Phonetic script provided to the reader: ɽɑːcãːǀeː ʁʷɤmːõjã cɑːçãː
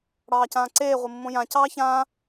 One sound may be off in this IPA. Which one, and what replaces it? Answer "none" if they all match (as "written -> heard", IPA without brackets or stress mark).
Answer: none